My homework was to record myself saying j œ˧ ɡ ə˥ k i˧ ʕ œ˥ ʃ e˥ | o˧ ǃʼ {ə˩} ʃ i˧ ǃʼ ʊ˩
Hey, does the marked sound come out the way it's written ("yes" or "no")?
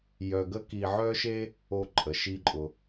yes